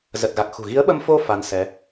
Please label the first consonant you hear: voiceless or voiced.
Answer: voiced